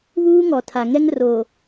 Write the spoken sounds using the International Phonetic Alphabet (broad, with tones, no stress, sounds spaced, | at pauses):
β uː˦ ŋ ɔ˨ tʰ a˨ ŋ ɛ˦ ŋ r o˨